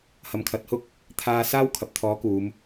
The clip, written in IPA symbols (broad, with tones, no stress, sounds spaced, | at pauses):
h ɐ˧ m kʰ ɐ˧ t̚ h ʊ˥ k̚ | t̪ʰ aː˧ s aː˥ w kʰ ɐ˨ p̚ t̪ʰ ɔː˨˥ k uː˨˧ m